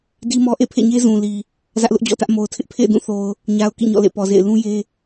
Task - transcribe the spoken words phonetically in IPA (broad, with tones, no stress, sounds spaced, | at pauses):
d i˦ m ɔ˦ ʔ ḛ˦˨ pʰ ḛ˦˨ ɲ e˦ z ũ˨ l i˨ | z ä˦ ʔ l ʊ˦ ʔ d͡ʑ ɔ̰˦˨ t ä˦ ʔ m o˨ ʊ̯ tʰ ɪ˦ ʔ pʰ ḛ˦˨ ɪ̯ d ũ˦˨ θ o˨ ʊ̯ | ɲ a˨ ʊ̯ k ḭ˦˨ ɲ ɔ̰˦˨ l ḛ˦˨ p ɔ˨ z ḛ˦˨ ɪ̯ l ũ˦ j e˦